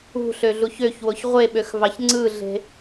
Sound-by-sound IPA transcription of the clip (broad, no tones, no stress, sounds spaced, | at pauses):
ṳ ɬ ø ɮ u ç ø ç w o ç ʁʷ e ɓ ø x v ɑ ç ŋ͡ǀ ɯ ɮ e̤